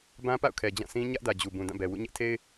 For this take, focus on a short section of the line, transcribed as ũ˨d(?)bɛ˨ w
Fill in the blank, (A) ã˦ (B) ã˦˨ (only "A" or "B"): B